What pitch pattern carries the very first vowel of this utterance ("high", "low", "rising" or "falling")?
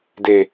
low